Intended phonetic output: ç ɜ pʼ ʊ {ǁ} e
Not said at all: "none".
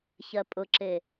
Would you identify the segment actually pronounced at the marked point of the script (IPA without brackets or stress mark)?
ǁ